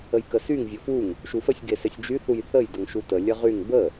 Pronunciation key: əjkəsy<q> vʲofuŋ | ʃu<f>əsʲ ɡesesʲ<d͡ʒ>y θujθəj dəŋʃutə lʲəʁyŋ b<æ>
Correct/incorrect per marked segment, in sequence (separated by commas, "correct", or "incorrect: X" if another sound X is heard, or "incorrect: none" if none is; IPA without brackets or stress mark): incorrect: ŋ, correct, correct, incorrect: ə